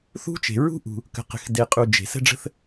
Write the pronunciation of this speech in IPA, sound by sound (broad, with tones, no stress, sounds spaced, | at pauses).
θ ṳ˥ t͡ʃ e̤˩ ɹ ṳ˥ ʔ ṳ˩ | k ə̤˩ q ə̤˩ x d e˩ qʼ u˩ d͡ʒ e̤˩ s ə̤˥ ɖ͡ʐ ə̤˥ θ